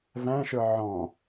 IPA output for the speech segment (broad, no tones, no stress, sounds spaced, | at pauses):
v æ̃ ʃ ə˞ ʕ ɔ̃